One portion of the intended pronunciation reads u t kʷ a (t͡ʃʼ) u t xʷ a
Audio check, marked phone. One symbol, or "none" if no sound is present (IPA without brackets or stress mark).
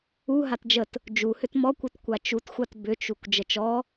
t͡ʃ